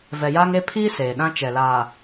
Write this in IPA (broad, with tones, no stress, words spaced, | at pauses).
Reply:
vɛ˨jaː˦ŋe˦ pʰiː˦ seː˨ɗã˦ t͡ʃɛ˨laː˨